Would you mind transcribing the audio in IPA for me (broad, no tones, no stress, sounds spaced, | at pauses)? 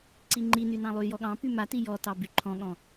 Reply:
ǀ i ŋ͡ǃ i n y n ɑ̃ lˠ y j ɔ ɠ ɑ̃ p y m a t i j ɔ t ɑ b y ǃʰ ɔ̃ ɠ ɔ̃